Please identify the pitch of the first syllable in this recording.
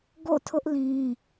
falling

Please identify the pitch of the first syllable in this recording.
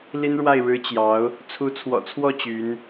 high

